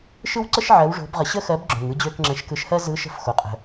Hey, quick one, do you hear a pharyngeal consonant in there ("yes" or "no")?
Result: yes